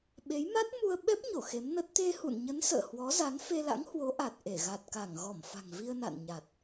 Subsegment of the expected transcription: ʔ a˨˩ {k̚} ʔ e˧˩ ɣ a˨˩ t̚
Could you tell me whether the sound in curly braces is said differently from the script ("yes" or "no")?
yes